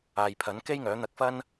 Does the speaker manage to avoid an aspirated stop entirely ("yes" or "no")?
no